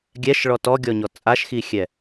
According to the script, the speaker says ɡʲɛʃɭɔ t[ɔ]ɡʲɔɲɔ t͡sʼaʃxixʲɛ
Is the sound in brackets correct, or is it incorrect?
correct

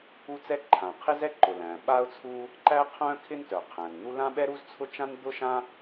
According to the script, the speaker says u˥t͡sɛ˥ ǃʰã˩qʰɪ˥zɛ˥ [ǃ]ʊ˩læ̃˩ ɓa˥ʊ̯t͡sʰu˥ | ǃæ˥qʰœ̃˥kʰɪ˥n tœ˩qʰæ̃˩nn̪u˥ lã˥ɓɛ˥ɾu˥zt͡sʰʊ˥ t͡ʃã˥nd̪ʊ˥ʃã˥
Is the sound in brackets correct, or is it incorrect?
correct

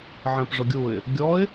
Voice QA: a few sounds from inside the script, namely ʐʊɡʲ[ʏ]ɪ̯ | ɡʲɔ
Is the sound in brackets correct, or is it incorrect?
incorrect: u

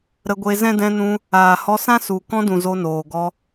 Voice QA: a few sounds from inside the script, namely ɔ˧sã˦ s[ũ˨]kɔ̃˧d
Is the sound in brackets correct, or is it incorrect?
incorrect: u˨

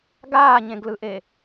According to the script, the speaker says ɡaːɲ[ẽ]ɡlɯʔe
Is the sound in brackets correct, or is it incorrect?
correct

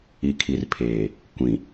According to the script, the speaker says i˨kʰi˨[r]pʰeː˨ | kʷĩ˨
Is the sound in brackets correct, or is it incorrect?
correct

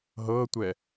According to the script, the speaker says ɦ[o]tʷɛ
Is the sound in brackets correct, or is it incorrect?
incorrect: ɤ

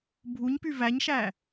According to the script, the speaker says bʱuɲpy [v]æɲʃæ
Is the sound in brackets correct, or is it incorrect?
correct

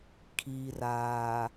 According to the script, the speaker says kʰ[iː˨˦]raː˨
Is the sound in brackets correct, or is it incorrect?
incorrect: iː˨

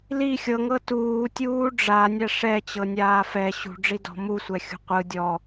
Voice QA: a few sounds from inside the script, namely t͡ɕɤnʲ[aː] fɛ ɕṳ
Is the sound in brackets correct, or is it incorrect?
correct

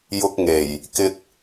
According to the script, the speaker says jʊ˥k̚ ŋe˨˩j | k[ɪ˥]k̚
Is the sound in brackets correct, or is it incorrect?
correct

